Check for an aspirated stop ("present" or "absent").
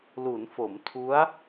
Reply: present